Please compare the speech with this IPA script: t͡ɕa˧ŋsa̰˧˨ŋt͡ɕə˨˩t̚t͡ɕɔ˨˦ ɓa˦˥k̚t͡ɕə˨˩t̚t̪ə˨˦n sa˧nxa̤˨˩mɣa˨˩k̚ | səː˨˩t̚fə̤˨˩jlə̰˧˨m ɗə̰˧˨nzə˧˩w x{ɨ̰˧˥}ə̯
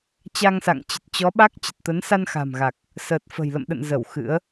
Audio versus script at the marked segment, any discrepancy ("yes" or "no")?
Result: no